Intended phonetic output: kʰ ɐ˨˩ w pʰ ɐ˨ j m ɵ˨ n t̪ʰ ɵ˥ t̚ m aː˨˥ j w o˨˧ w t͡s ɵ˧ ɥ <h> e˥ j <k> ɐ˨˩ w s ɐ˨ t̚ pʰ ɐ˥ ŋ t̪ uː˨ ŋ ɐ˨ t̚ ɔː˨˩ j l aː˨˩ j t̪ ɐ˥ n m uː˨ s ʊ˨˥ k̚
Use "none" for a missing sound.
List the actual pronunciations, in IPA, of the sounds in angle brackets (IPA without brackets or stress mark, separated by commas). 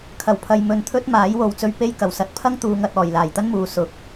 p, k